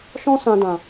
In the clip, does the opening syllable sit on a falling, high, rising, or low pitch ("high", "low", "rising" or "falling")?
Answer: high